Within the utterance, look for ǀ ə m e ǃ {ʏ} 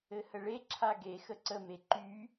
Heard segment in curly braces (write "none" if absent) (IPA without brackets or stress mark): y